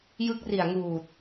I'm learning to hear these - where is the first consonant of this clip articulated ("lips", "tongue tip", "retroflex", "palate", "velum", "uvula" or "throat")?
palate